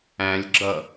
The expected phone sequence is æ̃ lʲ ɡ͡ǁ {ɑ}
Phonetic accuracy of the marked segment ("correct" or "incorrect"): incorrect